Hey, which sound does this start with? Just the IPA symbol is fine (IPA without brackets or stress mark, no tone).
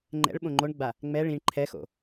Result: ŋ͡ǃ